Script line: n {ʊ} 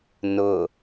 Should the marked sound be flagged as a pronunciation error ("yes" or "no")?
no